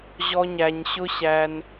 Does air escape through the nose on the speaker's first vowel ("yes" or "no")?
no